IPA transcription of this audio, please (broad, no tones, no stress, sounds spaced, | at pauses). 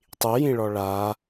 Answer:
tˤ i j ĩ ɭ ɔ ɭ a